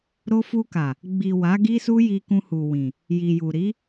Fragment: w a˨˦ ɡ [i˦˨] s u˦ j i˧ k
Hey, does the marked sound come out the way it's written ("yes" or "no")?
no